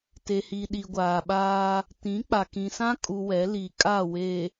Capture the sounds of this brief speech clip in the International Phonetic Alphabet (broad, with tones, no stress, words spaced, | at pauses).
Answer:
te˨hi˨ ɗi˨ɡʷaː˨ɓaː˦ | tĩ˨˦k͡pa˨kĩ˨ sã˦kʼu˨ wɛ˨˦li˨ kʼa˦˨we˨